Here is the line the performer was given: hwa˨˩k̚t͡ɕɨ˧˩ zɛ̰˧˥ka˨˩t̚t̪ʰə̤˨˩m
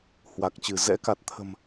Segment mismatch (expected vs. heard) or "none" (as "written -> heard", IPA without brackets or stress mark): none